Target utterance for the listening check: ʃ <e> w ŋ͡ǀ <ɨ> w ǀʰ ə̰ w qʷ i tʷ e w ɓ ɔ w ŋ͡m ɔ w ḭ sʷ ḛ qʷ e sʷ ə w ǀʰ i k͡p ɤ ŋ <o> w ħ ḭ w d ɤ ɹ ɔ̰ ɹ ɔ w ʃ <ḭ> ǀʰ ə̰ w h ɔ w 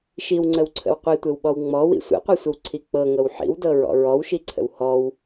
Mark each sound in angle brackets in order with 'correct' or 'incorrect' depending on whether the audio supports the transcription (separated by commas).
incorrect, incorrect, incorrect, incorrect